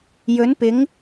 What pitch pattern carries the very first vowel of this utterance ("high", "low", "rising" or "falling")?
rising